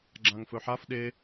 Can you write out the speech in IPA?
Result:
ɡ͡ǁãŋfɵħaf ɗe

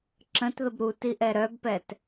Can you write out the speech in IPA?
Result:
ǁə̃tðəb ɾutiʔɛ ɾœbpɛt

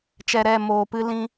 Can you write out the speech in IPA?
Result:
t͡ʃɛ˧ɾɛ˦˨ moː˧pɨ˦lĩ˦

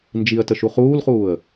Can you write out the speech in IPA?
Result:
nd͡ʒiə̯tə ʃuχuːlχuːə̯

